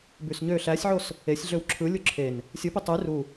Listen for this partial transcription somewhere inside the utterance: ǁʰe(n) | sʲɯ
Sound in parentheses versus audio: correct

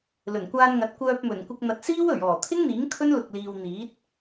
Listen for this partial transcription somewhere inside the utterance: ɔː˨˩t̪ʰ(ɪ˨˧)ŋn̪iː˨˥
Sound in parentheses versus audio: incorrect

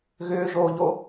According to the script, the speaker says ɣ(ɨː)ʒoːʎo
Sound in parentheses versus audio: incorrect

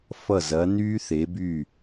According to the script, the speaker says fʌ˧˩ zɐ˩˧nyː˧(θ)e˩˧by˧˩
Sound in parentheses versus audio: correct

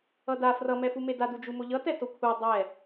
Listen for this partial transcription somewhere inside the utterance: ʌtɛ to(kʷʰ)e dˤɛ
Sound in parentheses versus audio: correct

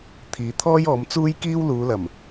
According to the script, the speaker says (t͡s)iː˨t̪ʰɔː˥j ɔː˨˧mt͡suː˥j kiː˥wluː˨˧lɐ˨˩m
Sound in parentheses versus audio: incorrect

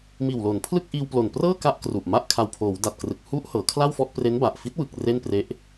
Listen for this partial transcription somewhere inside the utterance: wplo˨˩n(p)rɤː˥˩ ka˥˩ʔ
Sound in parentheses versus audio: correct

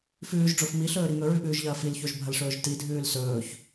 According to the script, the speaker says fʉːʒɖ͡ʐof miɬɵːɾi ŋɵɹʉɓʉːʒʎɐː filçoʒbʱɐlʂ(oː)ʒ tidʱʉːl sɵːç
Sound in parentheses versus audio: incorrect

